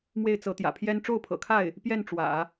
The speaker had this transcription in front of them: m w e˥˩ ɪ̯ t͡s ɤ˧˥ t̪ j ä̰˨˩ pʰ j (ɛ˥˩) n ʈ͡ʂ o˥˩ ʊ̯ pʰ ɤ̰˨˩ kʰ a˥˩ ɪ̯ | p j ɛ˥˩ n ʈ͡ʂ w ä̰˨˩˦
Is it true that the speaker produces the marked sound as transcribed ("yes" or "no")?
no